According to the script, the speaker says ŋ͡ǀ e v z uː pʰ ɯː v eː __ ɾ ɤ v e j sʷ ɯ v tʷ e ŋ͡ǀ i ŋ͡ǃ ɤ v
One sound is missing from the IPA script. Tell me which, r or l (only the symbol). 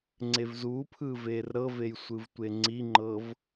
r